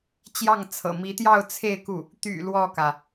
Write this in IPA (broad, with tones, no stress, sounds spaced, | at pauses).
t͡ɕ j ɑ˥˩ ŋ t͡sʰ ɤ̰˨˩ m i˧˥ t̪ j ɑ˥˧ ʊ̯ t͡sʰ e˥˧ ɪ̯ k u˥˩ | t̪ y̰˨˩ l w ɔ˥˩ k ä˩